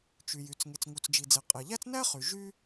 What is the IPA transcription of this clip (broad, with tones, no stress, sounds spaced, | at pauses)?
t͡ʃ y˩ j y˩ t͡s ŋ e˩ t͡s ŋ u˩ t͡s d͡ʒ i˩ d͡z e˩ qʼ e˩ ʎ æ˥ t͡s n æ˥ χ y˩ ʒ y˥